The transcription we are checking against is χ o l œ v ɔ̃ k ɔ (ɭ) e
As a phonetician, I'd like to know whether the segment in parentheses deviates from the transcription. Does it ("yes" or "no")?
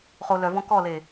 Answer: yes